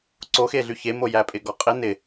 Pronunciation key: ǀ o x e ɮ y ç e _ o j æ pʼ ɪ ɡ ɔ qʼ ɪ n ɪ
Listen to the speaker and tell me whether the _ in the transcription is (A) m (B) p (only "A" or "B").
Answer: A